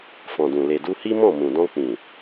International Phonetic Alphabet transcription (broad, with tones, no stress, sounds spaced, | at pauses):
f ɔ̃˨ d ũ˨ l e˨ d u˧ h i˦ m ɔ̃˦˨ m ũ˨ d ɔ̃˧ k͡p ĩ˨